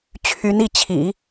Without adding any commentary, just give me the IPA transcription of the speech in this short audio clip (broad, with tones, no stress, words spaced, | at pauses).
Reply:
t͡ɕʰy˧˥ni˥˩ t͡ɕʰḭ˨˩˦